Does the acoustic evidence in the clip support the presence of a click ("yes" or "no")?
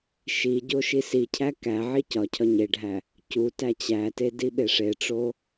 no